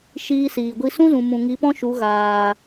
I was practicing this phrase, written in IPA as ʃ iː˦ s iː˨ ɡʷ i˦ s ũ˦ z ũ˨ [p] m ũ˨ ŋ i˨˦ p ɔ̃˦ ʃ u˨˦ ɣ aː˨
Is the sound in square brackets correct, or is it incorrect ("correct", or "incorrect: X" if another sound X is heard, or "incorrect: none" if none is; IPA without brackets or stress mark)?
incorrect: none